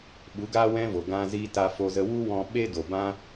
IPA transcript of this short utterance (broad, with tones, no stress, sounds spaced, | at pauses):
ɓ u˨˦ ɡ aː˦ w ɛ̃˦ v o˨ ɡ ã˧ z iː˧ t a˧ f o˧ z ə˧ w u˦ w ɔ̃˧ ɓ e˦ d o˨ b ã˦